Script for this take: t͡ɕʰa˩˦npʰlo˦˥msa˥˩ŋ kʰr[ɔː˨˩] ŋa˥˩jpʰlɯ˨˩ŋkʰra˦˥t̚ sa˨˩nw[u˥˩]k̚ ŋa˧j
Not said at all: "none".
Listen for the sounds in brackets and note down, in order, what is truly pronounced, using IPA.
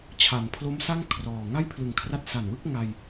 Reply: ɔː˨˩, ɯ˥˩

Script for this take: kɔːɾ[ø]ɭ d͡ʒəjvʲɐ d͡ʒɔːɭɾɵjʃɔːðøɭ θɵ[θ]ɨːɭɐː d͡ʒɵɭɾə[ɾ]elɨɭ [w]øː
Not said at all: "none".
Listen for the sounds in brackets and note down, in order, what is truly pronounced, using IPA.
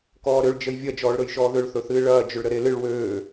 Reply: ø, θ, ɾ, w

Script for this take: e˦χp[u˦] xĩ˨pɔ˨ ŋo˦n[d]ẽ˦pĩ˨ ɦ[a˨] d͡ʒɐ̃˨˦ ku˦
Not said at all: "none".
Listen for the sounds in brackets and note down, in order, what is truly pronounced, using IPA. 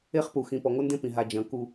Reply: u˨, d, a˨

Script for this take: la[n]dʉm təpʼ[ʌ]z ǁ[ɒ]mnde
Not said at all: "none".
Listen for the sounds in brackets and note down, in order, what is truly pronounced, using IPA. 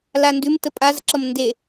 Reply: n, a, ʌ

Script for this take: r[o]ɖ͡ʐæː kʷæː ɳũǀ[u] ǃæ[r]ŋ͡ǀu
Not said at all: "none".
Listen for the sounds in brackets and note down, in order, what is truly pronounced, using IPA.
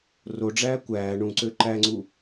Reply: o, ø, none

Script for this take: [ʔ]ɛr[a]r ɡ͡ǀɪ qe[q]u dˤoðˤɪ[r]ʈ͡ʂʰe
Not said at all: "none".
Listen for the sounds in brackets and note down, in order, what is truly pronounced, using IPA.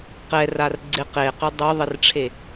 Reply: q, a, q, r

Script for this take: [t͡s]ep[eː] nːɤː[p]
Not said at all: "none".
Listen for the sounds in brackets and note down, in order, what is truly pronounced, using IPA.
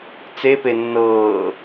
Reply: t͡s, e, none

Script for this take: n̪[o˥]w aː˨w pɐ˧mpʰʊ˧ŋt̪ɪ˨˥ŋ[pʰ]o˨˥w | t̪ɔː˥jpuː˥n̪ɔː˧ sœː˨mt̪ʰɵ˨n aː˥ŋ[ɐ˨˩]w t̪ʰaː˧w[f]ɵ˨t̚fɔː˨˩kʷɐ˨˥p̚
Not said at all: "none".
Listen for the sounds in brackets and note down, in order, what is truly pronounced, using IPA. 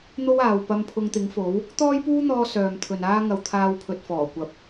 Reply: o˥, f, ɐ˧, pʰ

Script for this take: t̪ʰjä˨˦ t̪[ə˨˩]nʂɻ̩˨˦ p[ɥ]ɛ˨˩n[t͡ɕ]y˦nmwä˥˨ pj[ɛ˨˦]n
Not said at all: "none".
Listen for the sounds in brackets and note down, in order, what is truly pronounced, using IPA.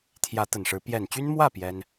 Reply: ə˨˩, j, t͡ɕ, ɛ˦

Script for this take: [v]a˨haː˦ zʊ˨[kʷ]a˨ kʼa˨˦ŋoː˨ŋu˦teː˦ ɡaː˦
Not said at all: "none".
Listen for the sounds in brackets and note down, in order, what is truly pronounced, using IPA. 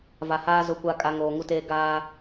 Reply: v, kʷ

